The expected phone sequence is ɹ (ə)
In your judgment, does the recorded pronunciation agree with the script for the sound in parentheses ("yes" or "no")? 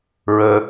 yes